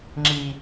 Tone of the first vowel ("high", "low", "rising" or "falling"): high